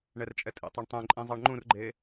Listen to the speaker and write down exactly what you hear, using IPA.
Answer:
ɳ ɛ r t͡ʃʼ ɛ tʼ ḭ tˤ e ɳ tˤ ẽ ǃʼ ĩ zˤ ɑ ɳ ŋ͡ǃ ũ r ɡ͡ǃ e

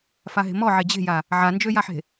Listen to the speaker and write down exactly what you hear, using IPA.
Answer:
f a ɦ e̤ m ɔ ʕ e d͡ʑ e̤ j a | ʕ a n d͡ʒ ø j a ħ e̤

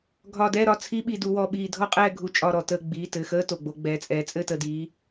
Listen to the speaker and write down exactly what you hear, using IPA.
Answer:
ɡʱ ɒ˧˩ d ɛː˥˨ ɾ ɒ˧˩ t͡sʰ i˧˥˧ ɓ i˧˩ d u˩˧ w ɔ˩˧˩ ɓ iː˧˩ dʱ ɔ˥˨ qʼ ɛː˥˨ ɡʱ u˧˩ t͡ʃʼ ɒ˧˩ ɾ ɔ˩ t əː˧˩ ɡ͡b iː˩˧˩ t ɘ˩˧˩ x əː˧˥˧ t o˩ ɡ͡b o˩˧ ɡ͡b ɛː˩˧˩ t͡sʼ ɛː˩˧ t͡sʼ ɘ˥˨ t ə˧˩ d iː˩˧

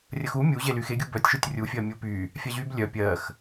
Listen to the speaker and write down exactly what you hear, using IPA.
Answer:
rʲ ə x u mʲ u ʑ e l y x e ɡʲ u b œ tʲ ʃ u tʲ rʲ u fʲ ɜ mʲ u p y | fʲ a ʑ y b lʲ œ pʲ ɜ x

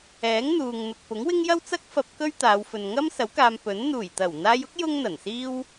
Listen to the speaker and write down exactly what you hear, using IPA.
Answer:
ɛː˨˥ ŋ n̪ uː˨ ŋ n̪ ʊ˨ k̚ p ʊ˨˥ ŋ w ɪ˥ ŋ j ɐ˥ w t͡s ɐ˥ k̚ f ɐ˧ p̚ k ɵ˥ ɥ t̪ aː˨˧ w f ɵ˨ n ŋ ɐ˥ m s ɐ˨˥ w k aː˧ m p ɵ˨˥ n n̪ uː˨˩ j t̪ ɐ˨˩ w n̪ aː˧ j ʊ˥ k̚ j ʊ˥ ŋ n̪ ɐ˨˩ n s iː˥ w

